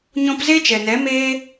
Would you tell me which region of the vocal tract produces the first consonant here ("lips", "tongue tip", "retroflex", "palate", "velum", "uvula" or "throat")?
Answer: palate